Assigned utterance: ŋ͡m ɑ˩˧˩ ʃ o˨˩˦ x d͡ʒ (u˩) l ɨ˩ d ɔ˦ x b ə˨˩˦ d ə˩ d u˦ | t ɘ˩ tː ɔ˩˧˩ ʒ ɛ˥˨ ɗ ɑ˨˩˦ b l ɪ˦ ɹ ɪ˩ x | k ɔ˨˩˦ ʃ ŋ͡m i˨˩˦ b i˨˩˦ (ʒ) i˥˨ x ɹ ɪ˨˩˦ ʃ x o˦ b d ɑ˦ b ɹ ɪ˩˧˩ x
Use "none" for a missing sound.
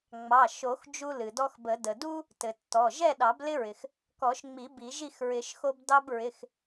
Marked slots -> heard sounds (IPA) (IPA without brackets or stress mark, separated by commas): u˦, ʒ